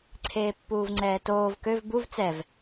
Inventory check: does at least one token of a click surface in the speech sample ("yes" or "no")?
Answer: yes